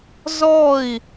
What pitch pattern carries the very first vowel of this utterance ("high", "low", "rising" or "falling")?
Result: falling